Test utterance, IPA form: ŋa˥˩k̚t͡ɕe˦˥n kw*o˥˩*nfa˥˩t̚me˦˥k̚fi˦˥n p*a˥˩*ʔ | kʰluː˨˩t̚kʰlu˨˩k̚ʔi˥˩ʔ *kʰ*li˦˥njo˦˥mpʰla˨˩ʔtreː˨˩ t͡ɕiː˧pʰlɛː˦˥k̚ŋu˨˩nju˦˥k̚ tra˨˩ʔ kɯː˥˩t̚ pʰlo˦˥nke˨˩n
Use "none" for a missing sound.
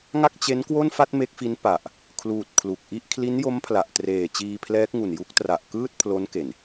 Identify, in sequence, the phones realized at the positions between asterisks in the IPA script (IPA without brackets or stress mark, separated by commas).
o˥˩, a˨˩, kʰ